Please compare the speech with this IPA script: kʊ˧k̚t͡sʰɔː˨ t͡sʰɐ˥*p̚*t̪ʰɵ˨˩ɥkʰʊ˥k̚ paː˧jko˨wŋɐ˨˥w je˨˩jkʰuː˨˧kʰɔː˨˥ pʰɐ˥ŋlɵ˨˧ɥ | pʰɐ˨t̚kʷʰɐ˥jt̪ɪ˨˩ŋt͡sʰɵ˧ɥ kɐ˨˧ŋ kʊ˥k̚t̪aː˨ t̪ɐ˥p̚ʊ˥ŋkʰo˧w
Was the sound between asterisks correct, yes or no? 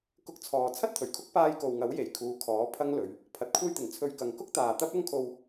no